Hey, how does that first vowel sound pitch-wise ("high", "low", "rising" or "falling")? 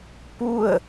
falling